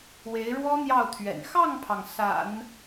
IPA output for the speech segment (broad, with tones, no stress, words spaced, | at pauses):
we˧˥ɪ̯ɻwɔ˥ n̪jɑ˥˩ʊ̯t̪ʰɥɛ̰˨˩n xɑ˥˩ŋpʰɑ˩ŋ sa̰˨˩˦n